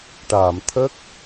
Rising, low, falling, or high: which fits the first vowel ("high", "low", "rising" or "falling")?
low